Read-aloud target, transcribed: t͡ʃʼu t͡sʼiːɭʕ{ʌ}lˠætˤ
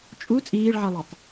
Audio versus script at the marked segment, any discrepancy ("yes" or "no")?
no